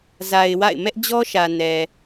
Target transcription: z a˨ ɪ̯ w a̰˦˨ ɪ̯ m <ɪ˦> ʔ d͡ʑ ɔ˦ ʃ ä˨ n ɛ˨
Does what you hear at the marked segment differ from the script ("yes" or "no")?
yes